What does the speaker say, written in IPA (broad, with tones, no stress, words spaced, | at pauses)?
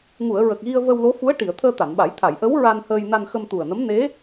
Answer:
ŋu˨˩˨ə̯ ɹə˨˩k̚ɣi˧ə̯ və˧wlo˧˥ fu˧˥ə̯ ʈi˨˩˨ə̯ t̪ʰəː˧ t̪a˨˩˨nɓa˨˩˦j t̪ʰa˨˩˨jʔə˧˥w ɹa˧nhəː˧j na˧nxə˧mt̪u˨˩ə̯nə˧˥m ne˧˥